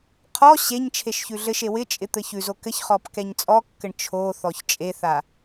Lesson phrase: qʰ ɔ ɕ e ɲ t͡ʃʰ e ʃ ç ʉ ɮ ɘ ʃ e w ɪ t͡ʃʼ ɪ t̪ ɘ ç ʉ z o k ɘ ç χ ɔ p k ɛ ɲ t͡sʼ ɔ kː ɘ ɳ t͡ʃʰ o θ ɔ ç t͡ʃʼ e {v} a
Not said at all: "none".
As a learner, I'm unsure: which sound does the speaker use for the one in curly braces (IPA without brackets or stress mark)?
θ